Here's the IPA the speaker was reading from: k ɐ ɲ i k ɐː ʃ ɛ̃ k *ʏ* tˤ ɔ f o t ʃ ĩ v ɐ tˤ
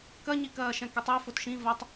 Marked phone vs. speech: incorrect: ɨ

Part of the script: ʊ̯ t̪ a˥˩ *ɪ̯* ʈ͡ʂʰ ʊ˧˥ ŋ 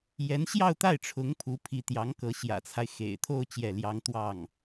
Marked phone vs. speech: correct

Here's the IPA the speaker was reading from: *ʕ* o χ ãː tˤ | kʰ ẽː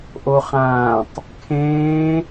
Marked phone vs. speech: incorrect: ʔ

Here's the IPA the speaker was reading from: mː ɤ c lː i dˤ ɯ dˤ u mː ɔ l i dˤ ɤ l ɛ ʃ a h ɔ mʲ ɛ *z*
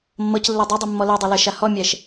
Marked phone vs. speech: incorrect: ʃ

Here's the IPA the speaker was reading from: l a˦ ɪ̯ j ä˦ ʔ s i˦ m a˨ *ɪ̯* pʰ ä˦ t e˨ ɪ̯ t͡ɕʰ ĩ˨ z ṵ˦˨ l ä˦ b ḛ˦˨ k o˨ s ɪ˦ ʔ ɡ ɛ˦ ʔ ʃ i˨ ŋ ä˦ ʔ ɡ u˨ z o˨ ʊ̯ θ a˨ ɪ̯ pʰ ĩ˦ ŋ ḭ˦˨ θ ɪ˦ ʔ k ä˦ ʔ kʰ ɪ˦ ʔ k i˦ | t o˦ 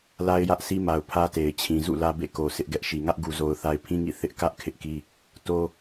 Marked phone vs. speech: incorrect: ʊ̯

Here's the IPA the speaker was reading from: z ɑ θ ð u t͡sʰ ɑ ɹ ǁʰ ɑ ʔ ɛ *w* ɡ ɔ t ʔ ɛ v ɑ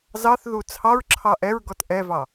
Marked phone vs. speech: incorrect: ɹ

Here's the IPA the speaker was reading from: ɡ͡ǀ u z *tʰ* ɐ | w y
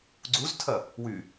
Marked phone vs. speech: correct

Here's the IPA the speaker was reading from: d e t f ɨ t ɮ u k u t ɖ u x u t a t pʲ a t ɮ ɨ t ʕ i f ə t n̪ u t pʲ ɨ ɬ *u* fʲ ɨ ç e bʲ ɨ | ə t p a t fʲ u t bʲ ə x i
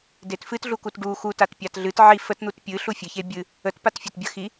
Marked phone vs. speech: correct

